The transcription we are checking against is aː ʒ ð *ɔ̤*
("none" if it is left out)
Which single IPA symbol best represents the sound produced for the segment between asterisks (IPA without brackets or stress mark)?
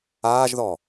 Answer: ɔ